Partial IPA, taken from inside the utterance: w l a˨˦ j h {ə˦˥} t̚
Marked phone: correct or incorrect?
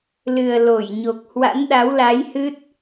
incorrect